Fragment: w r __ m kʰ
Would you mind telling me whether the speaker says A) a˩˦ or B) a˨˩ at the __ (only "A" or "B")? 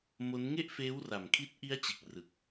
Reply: B